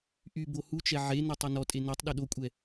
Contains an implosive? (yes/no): yes